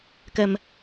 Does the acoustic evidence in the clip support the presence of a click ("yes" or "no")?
no